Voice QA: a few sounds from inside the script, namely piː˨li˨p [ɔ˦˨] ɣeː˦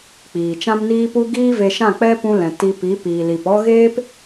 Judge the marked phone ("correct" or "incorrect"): incorrect